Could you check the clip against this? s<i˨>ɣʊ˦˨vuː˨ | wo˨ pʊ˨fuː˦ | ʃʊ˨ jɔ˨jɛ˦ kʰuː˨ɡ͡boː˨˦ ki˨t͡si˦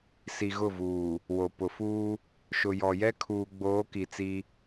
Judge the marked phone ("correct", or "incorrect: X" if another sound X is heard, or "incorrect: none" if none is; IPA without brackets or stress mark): correct